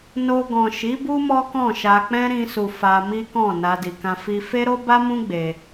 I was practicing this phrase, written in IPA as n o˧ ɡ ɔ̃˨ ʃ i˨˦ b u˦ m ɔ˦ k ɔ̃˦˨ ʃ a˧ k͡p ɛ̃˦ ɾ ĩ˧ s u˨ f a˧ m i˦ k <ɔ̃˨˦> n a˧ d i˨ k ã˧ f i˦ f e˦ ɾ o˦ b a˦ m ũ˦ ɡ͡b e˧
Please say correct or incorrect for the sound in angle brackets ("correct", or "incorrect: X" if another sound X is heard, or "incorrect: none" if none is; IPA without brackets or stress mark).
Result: incorrect: ɔ̃˦˨